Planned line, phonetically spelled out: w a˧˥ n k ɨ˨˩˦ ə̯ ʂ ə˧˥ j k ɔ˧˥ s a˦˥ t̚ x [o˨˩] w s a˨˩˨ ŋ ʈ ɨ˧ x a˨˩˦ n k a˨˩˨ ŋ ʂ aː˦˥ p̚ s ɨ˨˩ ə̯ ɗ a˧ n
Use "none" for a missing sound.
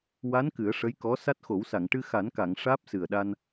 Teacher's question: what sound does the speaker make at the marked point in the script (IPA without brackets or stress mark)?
o˨˩˦